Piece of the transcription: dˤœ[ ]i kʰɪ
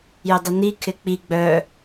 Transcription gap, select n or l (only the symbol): n